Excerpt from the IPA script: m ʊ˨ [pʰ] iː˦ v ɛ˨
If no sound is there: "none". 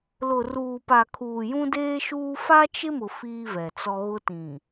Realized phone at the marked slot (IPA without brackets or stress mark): f